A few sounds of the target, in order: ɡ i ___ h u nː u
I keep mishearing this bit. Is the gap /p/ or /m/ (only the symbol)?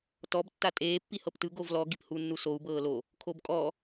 p